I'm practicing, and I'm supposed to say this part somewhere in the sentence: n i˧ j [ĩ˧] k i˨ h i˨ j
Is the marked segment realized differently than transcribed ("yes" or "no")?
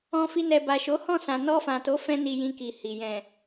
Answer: no